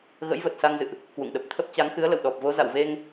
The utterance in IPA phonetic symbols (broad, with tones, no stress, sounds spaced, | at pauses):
ɣ ə̰˧˥ j v ə˨˩ t̚ s a˧ ŋ z ɨ̰˧˨ ʔ | k w ṵ˧˨ ŋ ɗ ə˨˩ p̚ t̪ʰ ə˦˥ p̚ t͡ɕ a˨˦ ŋ x ɨ˨˦ ə̯ l ə̰˧˨ w ɗ ɔ˨˩ p̚ v o˨˦ z a̰˧˨ w v e˧ ŋ